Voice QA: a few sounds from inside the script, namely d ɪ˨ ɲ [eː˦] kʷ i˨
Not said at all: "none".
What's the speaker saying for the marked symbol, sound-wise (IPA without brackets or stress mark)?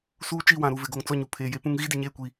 eː˦˨